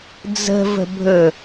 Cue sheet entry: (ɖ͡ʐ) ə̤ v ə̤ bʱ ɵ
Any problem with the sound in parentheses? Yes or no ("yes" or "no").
yes